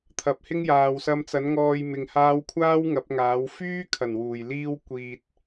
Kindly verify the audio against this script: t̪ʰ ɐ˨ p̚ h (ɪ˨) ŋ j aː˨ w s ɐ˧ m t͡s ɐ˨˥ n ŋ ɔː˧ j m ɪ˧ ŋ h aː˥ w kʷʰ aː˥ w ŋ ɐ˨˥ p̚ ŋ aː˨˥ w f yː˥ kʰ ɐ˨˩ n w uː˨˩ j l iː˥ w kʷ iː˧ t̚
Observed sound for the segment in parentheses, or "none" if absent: ɪ˥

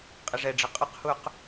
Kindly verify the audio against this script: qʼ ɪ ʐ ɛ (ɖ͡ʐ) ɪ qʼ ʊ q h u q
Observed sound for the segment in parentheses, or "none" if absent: ɖ͡ʐ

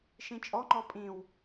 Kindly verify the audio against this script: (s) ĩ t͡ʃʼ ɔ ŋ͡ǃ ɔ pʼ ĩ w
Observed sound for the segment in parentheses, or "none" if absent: ʃ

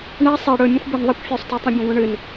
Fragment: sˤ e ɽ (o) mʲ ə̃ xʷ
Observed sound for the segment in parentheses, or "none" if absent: ɵ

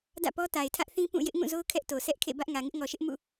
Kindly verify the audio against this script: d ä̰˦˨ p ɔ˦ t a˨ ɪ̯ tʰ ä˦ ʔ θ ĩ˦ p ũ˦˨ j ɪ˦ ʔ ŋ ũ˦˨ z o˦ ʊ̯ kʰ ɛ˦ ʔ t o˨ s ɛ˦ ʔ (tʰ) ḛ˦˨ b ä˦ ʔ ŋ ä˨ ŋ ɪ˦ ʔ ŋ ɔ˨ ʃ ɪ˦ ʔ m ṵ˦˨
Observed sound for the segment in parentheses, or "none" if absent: kʰ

